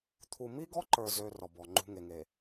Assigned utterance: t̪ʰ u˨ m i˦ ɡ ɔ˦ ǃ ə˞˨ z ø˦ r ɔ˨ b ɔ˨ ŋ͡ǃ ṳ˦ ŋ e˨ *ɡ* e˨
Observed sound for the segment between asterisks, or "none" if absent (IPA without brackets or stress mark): ŋ